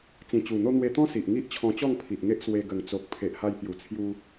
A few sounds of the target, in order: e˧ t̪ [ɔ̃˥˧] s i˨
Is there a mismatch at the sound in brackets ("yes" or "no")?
yes